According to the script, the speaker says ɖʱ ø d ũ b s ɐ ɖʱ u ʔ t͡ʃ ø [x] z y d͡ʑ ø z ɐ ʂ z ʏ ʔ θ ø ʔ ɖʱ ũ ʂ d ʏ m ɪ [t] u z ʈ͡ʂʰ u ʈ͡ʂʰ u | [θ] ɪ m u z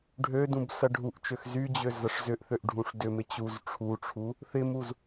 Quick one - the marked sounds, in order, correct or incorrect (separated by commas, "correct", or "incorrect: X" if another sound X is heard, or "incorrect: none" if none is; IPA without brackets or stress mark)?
correct, incorrect: t͡ɕ, correct